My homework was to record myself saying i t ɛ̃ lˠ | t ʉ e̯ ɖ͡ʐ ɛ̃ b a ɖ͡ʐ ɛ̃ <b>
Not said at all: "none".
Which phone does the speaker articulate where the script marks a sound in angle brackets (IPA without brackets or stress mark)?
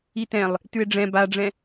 none